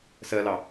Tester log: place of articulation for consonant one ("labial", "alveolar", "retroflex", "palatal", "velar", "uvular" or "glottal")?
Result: alveolar